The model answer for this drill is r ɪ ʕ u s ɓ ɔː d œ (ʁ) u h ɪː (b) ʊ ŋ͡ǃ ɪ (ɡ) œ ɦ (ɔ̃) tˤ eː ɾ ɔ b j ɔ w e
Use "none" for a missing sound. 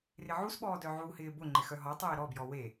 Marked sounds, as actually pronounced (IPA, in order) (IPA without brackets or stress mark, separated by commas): ʕ, b, x, ɔ